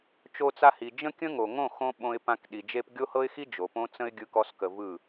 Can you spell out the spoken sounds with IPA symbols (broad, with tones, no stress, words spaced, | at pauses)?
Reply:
t͡ʃo˧t͡sa˧hi˨ d͡ʒə̃˦ kʲə̃˦ŋo˨ŋõ˦˨xõ˧ ɓõ˧ɪ̯pã˧k ɗi˨d͡ʒe˧p ɡʲo˦hɤ˦ɪ̯xi˦ d͡ʒo˨põ˦t͡sə̃˦ɪ̯ ɡʲɯ˦kɔ˦skə˧vɯ˦˨